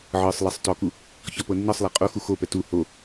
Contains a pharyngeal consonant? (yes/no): yes